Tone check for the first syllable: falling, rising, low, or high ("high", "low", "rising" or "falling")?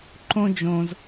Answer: high